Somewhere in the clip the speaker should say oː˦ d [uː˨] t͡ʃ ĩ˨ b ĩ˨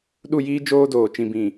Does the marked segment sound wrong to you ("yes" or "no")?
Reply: yes